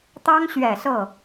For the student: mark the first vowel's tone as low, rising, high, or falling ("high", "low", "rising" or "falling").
high